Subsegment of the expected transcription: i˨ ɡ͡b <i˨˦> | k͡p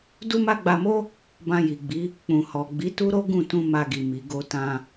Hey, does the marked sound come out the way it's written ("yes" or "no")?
yes